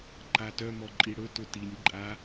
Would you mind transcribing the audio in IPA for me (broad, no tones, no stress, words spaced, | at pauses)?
ǃatœ mɔǃʼiɽɵ tʊtinʲ ǃʼa